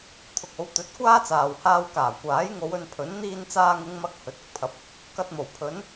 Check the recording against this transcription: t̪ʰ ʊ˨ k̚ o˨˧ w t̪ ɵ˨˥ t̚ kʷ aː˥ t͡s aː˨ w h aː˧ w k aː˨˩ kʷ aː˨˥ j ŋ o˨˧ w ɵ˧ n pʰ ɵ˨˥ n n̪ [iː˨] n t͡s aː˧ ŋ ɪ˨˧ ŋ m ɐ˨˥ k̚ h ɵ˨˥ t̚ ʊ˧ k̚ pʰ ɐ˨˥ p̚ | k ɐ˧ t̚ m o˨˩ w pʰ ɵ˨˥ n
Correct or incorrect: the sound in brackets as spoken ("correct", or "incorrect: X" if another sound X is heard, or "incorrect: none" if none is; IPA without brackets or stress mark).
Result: incorrect: iː˧